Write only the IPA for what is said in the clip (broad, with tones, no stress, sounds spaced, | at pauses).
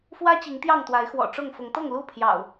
f w ä˦ t͡ɕ i˨˦ ŋ t̪ j ɑ˥˨ ŋ t̪ w a˨˦ ɪ̯ x w ɔ̰˨˩ ʈ͡ʂ ʊ˥˨ ŋ f ʊ˨˦ ŋ t̪ ɤ˥˨ ŋ l u˥˨ pʰ j ɑ̰˨˩ ʊ̯